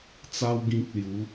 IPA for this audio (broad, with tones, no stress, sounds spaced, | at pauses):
t͡s a˦ w ɡ ĩ˦ k̚ l j u˨˦